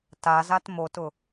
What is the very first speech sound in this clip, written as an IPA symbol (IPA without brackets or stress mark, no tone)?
t